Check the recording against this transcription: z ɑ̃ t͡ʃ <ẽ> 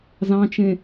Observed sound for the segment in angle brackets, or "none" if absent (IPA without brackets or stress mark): ẽ